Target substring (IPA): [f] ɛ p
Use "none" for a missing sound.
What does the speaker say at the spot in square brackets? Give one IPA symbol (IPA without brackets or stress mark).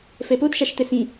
f